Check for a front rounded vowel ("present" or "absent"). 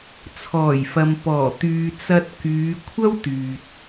present